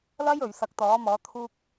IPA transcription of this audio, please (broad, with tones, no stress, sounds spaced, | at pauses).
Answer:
l ɐ˥ j ɵ˨ ɥ s ɐ˨˥ k̚ t̪ ɔː˨˥ m ɔː˨˥ t̪ʰ uː˧ k̚